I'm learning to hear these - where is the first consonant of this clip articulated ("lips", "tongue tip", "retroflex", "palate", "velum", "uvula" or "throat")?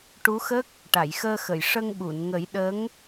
retroflex